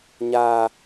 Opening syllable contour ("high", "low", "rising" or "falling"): high